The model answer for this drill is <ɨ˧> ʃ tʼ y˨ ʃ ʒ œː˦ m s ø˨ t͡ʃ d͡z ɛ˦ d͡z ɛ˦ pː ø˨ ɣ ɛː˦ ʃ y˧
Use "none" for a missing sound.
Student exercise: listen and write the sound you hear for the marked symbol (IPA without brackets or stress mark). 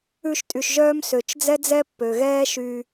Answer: ʉ˧